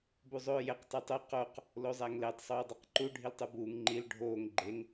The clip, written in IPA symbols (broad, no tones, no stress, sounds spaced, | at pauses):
b u zˤ oː j e q tˤ e tˤ o q o q | l o zˤ æ ŋ l e tˤ sˤ oː dˤ e q ǃ u ɖʱ i l tˤ u b uː ŋ ŋ͡ǃ i l ɖʱ oː ŋ ɡ͡ǃ e ŋ